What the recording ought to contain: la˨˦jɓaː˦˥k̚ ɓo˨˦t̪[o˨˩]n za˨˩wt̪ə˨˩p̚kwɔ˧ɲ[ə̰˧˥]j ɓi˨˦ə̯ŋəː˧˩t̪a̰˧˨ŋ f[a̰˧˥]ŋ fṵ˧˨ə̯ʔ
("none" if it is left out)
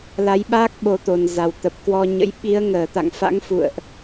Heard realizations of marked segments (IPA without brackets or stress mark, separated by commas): o˨˩, ə̰˧˥, a̰˧˥